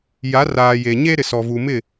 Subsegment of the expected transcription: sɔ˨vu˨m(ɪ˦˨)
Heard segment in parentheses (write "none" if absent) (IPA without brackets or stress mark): ɪ˦˨